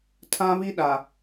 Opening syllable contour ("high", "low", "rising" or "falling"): high